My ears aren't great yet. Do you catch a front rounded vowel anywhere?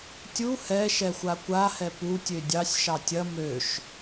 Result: yes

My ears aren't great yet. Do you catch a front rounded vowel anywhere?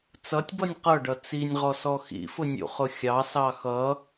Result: no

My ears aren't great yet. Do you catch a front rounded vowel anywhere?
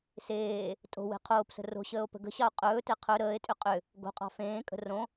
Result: yes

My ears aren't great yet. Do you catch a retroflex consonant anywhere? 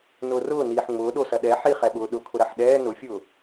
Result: no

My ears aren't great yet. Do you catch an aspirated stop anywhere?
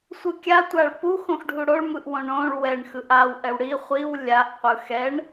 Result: no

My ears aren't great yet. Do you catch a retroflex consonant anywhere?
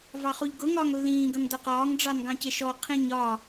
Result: yes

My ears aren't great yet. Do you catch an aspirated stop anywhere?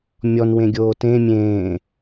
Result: no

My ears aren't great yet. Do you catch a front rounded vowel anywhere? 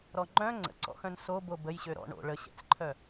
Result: yes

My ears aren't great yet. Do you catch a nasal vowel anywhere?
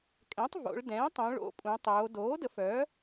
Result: yes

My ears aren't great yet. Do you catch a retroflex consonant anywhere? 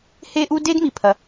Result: no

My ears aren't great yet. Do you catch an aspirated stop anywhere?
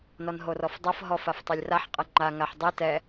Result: no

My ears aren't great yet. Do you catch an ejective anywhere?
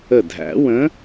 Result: no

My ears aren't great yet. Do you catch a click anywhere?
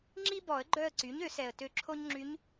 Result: yes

